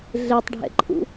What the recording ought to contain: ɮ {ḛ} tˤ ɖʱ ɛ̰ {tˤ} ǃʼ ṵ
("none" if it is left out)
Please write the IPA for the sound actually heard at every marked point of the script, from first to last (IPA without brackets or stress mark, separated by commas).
e, none